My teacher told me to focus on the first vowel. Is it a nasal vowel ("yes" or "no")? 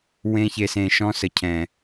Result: yes